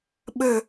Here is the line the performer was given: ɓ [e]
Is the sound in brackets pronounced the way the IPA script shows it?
no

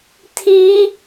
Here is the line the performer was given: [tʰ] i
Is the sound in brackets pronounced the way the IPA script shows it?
yes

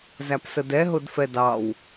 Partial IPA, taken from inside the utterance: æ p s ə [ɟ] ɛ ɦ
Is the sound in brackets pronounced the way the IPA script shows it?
no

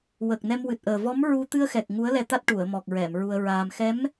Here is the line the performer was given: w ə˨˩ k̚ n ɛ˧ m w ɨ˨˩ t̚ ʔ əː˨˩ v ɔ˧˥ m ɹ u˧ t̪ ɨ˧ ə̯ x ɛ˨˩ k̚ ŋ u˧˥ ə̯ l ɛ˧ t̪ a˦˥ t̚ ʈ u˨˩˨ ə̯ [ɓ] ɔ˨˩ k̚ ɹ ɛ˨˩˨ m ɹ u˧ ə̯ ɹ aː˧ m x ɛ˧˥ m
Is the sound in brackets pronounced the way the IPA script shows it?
no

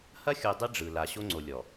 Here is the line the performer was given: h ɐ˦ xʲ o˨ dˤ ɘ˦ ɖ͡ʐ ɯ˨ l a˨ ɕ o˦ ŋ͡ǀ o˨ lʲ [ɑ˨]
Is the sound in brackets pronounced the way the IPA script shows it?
no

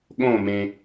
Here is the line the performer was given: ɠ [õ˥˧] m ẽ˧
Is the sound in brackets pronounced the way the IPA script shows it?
yes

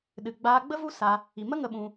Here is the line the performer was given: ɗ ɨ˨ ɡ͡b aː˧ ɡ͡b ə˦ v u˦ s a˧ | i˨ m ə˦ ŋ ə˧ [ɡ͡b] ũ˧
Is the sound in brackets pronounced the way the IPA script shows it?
no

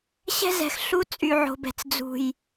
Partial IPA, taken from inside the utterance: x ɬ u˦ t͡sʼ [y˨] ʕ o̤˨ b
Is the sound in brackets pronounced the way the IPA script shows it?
yes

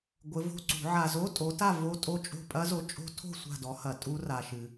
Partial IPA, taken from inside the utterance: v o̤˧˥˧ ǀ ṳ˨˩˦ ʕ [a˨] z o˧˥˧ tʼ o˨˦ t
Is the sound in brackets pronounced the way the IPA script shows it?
yes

